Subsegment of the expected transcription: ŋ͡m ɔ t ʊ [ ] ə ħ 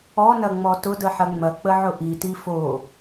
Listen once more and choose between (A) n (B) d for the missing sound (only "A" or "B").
B